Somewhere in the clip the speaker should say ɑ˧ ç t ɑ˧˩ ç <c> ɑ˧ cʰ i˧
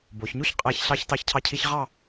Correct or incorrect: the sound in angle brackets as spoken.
incorrect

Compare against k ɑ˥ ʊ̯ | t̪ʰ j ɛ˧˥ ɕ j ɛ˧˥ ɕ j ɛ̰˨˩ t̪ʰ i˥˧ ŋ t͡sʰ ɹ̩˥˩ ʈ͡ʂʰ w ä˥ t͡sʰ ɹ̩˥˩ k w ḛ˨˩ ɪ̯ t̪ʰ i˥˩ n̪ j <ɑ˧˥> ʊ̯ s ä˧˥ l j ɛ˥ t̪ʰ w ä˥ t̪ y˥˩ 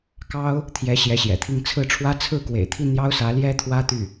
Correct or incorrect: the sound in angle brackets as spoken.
incorrect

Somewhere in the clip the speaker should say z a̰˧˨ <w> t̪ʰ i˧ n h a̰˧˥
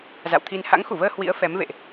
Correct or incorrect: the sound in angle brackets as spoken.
correct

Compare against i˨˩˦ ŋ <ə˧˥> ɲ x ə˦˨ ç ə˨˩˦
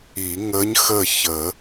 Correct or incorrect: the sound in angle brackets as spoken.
correct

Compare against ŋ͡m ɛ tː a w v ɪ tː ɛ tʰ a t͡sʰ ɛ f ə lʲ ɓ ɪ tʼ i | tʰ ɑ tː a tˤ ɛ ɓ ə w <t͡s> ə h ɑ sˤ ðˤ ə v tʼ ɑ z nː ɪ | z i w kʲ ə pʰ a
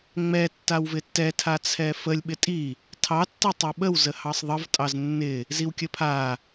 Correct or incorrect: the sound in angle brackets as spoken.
incorrect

